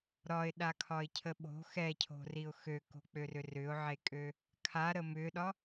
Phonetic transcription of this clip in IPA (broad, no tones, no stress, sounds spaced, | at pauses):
ɾ ɒ ɪ̯ ɗ a kʰ ɒ ɪ̯ cʰ ə ɓ o̤ x ɛ cʰ o̤ r i ʊ̯ x ø k o̤ k͡p ø r ʏ r ʏ ʊ̯ ʕ e kʼ ø | kʰ a ɾ ə m ʏ ɗ ɒ